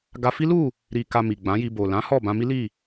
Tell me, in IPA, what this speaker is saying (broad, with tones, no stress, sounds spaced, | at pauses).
ɡ a˧ f i˦ l u˦˨ | ɾ i˨ k a˨ m i˨ ɡ͡b ã˨˦ j i˧ b o˨ l ã˨˦ h ɔ˦˨ b ã˧ m i˦ l i˦˨